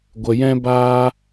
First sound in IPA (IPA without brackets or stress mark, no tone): ɡʷ